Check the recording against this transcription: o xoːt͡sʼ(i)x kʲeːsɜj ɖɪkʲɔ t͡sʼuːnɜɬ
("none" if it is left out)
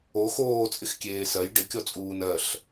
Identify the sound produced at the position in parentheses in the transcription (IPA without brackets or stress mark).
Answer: ɪ